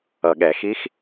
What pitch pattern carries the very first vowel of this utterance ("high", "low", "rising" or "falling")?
low